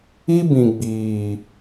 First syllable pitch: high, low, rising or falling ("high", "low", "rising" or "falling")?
high